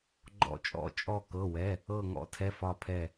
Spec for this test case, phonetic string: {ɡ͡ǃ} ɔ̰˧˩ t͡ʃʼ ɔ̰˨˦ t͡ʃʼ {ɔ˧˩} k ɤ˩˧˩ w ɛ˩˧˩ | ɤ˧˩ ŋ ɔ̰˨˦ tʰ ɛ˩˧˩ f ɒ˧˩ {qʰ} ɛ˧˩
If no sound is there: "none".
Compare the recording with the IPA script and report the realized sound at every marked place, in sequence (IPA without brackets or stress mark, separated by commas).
ɡ͡ǃ, ɔ˧˩, pʰ